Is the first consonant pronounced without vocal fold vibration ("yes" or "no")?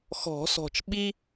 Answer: yes